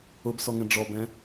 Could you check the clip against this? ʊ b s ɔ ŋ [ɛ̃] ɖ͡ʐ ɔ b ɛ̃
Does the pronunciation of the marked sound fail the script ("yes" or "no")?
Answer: no